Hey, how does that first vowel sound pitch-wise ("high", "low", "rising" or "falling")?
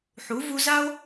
rising